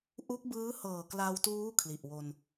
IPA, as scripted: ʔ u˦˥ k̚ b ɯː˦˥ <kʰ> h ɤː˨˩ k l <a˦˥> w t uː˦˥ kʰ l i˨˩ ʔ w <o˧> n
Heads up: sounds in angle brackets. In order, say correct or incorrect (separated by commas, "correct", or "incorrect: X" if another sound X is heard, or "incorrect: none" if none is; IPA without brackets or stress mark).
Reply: incorrect: none, incorrect: a˧, correct